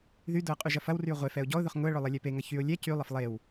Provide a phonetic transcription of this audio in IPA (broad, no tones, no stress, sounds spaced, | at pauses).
ð y d ʊ ə̯ qʼ y ʒ ɐ f ɐ w r y ʊ̯ ʁʷ e f ɛ ʊ̯ ɟ ɔ ʊ̯ ð ʊ χ ŋ ʊ ə̯ ɭ ʊ lˠ ɛ lʲ ɛ p e ŋ ɐ ç y ʊ̯ lʲ ɛ c y lˠ ɐ f lˠ e w